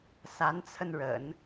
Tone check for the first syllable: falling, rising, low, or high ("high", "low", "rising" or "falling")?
rising